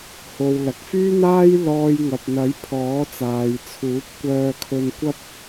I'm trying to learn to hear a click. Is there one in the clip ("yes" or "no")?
no